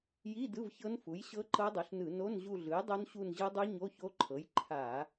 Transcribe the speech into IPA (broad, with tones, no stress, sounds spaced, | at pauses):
j i˧˥˧ d ɯ˧˥˧ v ç ɤ˦˥ n f u˩˥ j ɕ ɤ˦˥ ǃ ɤ˦˥ dˤ u˩˥ ɬ n ɯ˧˩˧ n o˧˥˧ n ʑ u˦˨ ɮ ɯ˩˥ j dˤ o˦˥ n ɕ u˦˨ n ʑ ɯ˦˥ dˤ u˦˥ ɲ o˧˥˧ ç o˦˥ ǃʰ ɤ˩˥ j ǃʰ a˧˩˧